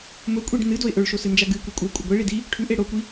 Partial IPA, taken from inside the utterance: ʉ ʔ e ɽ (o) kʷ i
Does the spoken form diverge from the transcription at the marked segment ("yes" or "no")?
no